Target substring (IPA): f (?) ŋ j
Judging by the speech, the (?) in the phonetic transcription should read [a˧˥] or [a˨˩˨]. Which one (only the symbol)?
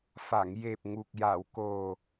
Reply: a˨˩˨